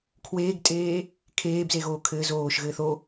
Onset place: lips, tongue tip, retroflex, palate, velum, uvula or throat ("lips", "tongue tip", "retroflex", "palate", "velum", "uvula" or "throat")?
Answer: velum